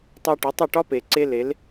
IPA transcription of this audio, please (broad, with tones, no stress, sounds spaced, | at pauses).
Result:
tˤ ɛ˧ ʈ ə˨˦ tˤ ə˦˨ ʈ ɒ˦ p e˨ ǀ e˦ l e˨˦ l